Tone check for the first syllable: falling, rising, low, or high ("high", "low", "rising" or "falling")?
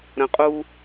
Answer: low